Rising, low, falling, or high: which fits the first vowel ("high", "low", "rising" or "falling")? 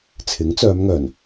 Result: rising